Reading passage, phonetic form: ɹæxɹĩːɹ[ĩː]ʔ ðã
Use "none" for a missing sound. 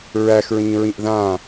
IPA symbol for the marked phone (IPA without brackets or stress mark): ĩ